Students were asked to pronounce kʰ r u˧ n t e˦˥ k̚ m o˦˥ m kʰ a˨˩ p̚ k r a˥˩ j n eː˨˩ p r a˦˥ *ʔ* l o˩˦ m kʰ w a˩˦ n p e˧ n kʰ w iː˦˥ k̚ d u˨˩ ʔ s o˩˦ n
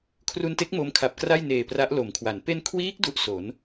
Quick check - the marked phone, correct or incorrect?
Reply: correct